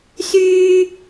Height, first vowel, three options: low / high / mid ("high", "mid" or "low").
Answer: high